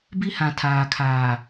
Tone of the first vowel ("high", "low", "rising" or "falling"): high